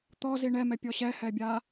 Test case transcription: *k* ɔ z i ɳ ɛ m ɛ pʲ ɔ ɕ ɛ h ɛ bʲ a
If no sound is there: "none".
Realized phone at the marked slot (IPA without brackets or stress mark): t̪